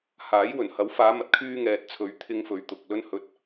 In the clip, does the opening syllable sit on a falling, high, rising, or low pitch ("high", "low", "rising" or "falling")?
rising